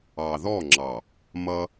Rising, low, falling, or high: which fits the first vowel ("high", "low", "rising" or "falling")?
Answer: low